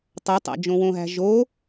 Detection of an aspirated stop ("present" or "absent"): absent